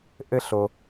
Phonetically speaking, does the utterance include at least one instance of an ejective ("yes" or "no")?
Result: no